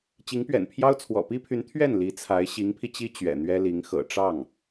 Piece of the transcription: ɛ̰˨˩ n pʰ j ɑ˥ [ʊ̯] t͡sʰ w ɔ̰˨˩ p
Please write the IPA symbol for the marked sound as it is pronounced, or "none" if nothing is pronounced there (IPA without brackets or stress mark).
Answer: ʊ̯